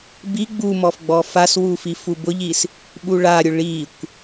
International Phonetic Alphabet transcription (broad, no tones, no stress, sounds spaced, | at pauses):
b i ɡ͡b u m ɔ f ɡ͡b ɔ f a s w u f i f u b ʊ ʎ i s | ɓ u ɭ a ɾʲ ʊ ɭ i kʷ